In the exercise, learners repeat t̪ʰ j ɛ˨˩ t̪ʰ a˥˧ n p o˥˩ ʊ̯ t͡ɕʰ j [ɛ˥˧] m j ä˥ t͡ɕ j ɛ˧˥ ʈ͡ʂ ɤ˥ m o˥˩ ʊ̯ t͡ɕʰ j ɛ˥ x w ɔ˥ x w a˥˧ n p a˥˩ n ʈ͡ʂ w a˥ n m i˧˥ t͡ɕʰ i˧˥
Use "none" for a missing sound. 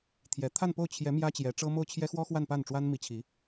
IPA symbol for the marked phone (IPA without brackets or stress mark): ɛ˧˥